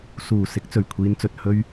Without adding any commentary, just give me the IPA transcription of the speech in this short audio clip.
suː˨˩ sɪ˨˥k̚t͡sɵ˨˩ɥkʷʰiː˨˧nt͡sɵ˨t̚ hɵ˧ɥ

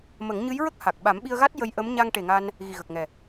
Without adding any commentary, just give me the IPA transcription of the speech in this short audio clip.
mə˨˩˦ŋɲɨ˧˥jɹə˦˥k̚ ha˨˩k̚ ɓa˨˩˦mɓi˧ə̯ɣa˦˥t̚ jə˧jʔə˧˥m ɲa˧ŋʈe˨˩ŋa˧n | ɣi˨˩ɣə˨˩k̚ŋɛ˨˩

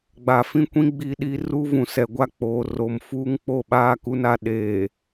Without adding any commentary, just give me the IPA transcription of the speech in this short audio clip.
ɡ͡ba˨fĩ˦kʷĩ˦ ɡ͡bi˦ɗi˦ ruː˦vũ˨sɛ˨ɡʷa˦ k͡poː˨ ro˨m fuː˦ŋk͡po˦˨ɓaː˦ ku˦na˦ ɗeː˨

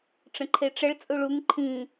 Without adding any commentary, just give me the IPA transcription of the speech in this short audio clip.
ʈ͡ʂə̃ǃʰeʈ͡ʂəɭ t͡sʼuɭuŋ ǃʰĩ

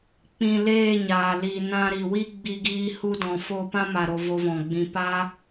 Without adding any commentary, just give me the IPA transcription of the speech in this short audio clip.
k͡pĩ˧leː˦˨ɲaː˨ liː˨ nã˧ɾi˨ wi˦ɡ͡bi˧ɡiː˧hu˧ dɔ̃˨ fo˧pã˦ma˨ɾo˨ vo˧vɔ̃˨ɡ͡bĩ˧ pa˦

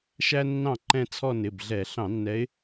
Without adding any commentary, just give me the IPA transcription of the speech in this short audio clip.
ʃæ˥nːɑ̃˥˩ǃɛ̃˥˧t͡sʰɔ˥˧ nɪ˩˧˩bɮɛ˧˩˧ ɬɑ̃˧˩˧nːɛ˨˦ɪ̯

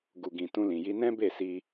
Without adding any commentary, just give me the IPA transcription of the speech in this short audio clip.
ɡu˨ɡĩ˨ tũ˧lĩ˨ji˧ nɛ̃˦be˦˨si˧

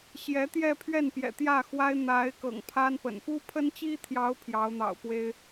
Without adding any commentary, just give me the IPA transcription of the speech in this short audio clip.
ɕjɛ˧˥t̪jɛ˥˧pʰɥɛ˥˩npjɛ̰˨˩ t̪jä˥˩xwa˥ɪ̯ n̪a˧˥ɪ̯ kɤ̰˨˩ŋpʰa˥npə̰˨˩n pu˥pʰə˥nt͡ɕi˥t̪ʰjɑ˧˥ʊ̯ pʰjɑ˧˥ʊ̯n̪ɑ̰˨˩ʊ̯pwe˥ɪ̯

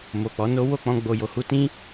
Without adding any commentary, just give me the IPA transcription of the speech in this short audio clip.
mo˨k͡pɔ˨˦no˦ wo˦˨k͡pɔ̃˧ ɡ͡bo˨jo˨hu˧tĩ˦

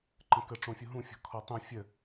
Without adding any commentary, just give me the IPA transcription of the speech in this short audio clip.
ǃə̃kə ʈ͡ʂõfʲuɦũfʲɔ̤ kʰɔtˤũ fʲə

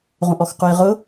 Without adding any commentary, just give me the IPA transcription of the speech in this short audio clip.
ʁũʔɔxqujʁʊ

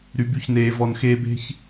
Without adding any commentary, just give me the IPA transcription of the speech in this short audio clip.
ɾy˨by˧çneː˨ vɔ˨nxeː˧be̤˦ç

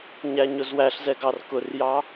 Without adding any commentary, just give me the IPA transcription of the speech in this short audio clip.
ɲæɲʊzwæɬzɛ ɡɑrkʊrjɑ

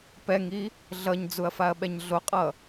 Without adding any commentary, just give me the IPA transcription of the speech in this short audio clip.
pɛŋi | ɮʌɲd͡zuɐ̯ faɐ̯ɓɛɲɮoqʼʌ

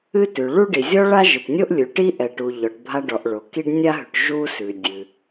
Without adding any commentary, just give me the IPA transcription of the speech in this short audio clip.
ɨ˥tʉ˩ ɭu˥ɖi˩ zʲɔ˥ɭa˥ ʒɨ˩tnʲo˥ʔ lʲʉ˩ ʈi˥ʔɛ˩ʈu˩ ʎɔ˩ʈ bʱa˥ɖɔ˩ʔ ɭo˩ ki˥ɖ nʲa˥ɦʉ˩ʈ ʒu˥ sʉ˩ dʲɨ˩

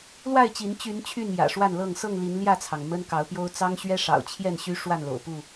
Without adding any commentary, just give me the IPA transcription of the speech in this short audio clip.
lwa˥˨ɪ̯t͡ɕi˨˦n t͡ɕy˨˦n t͡ɕʰy˥˨njä̰˨˩ʂwa˥˨nlɤ˥˨ŋ sɤ˥˨ŋli˨˦n ljä˥˨t͡sʰɑ˩ŋ mə˦nkɑ˨˦ʊ̯pjo˦ʊ̯ t͡sɑ˦ŋɕɥɛ˦ʂɑ̰˨˩ʊ̯ t͡ɕʰjɛ˥˨nɕy˦ ʂwa˥˨nlo̰˨˩ʊ̯ pu˥˨

